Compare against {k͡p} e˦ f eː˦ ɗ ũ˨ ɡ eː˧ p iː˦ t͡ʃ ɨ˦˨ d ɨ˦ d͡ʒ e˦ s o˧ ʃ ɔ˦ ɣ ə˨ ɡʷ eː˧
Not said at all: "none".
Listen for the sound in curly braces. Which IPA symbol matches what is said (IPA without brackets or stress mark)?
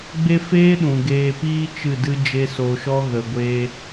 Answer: ɡ͡b